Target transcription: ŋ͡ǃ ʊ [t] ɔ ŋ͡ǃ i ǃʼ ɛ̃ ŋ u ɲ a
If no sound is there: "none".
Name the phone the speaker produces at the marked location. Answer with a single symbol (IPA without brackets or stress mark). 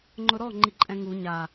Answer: ɾ